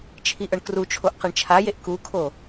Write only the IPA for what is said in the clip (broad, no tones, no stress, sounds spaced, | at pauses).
t͡ʃʰ i ʔ ɤ ɳ k r u t͡ʃʰ o ʔ q e ɳ t͡ʃʰ a j e ʔ k u kʰ o